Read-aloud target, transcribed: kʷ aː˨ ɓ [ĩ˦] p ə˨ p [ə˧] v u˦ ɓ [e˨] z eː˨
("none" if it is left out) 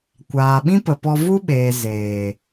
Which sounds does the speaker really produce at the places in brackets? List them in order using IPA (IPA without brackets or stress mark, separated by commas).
ĩ˦, ɔ˧, eː˨